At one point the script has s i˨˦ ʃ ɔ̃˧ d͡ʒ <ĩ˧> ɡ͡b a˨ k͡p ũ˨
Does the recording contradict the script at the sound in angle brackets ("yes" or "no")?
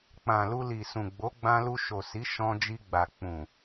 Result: yes